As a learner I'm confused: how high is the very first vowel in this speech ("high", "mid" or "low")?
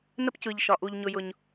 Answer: mid